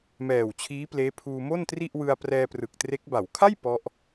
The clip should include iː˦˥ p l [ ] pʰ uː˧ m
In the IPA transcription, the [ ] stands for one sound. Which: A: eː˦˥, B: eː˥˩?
A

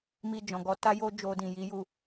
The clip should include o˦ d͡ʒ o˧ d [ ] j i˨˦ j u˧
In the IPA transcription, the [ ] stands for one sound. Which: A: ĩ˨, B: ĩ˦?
A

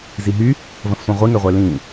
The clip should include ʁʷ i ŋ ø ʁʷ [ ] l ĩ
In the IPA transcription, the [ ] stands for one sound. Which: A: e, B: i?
A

